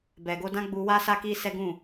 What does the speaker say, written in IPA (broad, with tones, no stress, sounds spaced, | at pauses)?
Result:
b ɛ˨ ɡ o˧ d ã˦ ɡ͡b u˧ w a˦ s a˦ k i˦ s ɛ˦ ɡ ũ˦˨